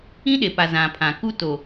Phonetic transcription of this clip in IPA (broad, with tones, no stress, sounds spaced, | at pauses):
ĩ˦ ɗ e˨ p a˨ z ã˨ pʰ ã˨ k u˦ t o˨